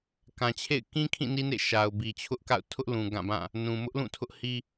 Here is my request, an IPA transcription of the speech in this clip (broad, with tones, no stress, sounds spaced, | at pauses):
k ã˨ t͡ɕʰ ḛ˦˨ ɪ̯ k ĩ˦ kʰ ĩ˦˨ n i˦ n ḛ˦˨ ʃ a˨ ʊ̯ b i˨ t͡ɕʰ ʊ˦ ʔ k a̰˦˨ ʊ̯ tʰ ʊ˦ ʔ l ũ˨ ɡ ã˦˨ b ã˦˨ | n ũ˨ m ʊ˦ ʔ l ũ˦˨ tʰ ʊ˦ ʔ h i˦